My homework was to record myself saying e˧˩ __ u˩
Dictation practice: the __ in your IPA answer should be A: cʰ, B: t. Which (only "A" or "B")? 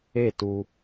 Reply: B